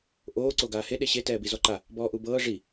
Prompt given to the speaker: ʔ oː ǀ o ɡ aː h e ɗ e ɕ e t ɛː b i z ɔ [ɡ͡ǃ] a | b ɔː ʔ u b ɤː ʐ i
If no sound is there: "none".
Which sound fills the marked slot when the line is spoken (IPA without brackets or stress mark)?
ǃ